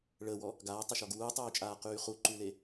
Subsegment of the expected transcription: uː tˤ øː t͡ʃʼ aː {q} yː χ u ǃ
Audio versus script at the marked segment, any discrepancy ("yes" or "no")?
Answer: no